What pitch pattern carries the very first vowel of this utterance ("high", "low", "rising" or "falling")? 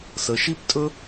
low